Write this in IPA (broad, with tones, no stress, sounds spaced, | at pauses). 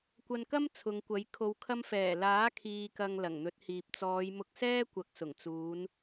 kʷ ɐ˧ n k ɐ˥ m t͡sʰ ʊ˨˧ ŋ kʷ ɐ˨˥ j kʰ o˨ w kʰ ɐ˧ m f ɛː˨˩ l aː˨˥ kʰ iː˨ k ɐ˨ ŋ l ɐ˨˩ ŋ n̪ ɵ˨˥ t̚ h iː˨ p̚ t͡s ɔː˨˧ j m ʊ˧ k̚ s ɛː˥ kʷ ɐ˨˥ k̚ s ʊ˨˩ ŋ t͡s uː˨˧ n